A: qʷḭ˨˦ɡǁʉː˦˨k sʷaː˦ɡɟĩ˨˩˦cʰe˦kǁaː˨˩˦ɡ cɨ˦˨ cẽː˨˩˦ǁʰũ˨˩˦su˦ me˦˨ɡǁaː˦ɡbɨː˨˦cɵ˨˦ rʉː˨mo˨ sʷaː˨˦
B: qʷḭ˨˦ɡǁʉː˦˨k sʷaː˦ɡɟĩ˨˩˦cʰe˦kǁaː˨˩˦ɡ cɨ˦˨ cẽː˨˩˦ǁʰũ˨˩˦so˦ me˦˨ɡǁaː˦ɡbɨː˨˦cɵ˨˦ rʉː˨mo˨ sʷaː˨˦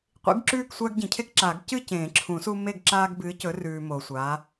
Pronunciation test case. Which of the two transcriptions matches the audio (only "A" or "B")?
A